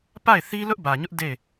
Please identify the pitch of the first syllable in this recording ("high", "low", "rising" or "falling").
falling